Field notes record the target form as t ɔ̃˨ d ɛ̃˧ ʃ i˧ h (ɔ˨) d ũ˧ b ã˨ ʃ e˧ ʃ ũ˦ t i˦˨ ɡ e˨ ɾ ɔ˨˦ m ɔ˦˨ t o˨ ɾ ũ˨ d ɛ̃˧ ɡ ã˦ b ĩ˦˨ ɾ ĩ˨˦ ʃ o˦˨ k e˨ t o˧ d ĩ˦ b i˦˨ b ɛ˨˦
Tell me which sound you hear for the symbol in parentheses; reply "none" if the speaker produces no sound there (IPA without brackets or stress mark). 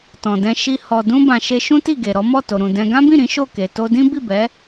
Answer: ɔ˨